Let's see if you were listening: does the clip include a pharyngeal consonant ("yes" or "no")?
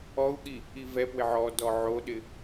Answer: yes